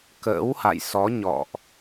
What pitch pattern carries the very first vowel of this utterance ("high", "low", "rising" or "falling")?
rising